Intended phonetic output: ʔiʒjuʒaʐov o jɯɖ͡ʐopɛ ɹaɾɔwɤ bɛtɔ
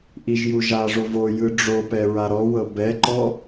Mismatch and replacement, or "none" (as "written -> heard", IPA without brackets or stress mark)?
t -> ǃ